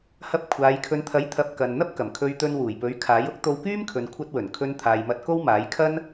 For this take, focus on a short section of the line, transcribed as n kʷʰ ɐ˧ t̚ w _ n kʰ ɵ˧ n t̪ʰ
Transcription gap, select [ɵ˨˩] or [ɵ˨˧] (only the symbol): ɵ˨˩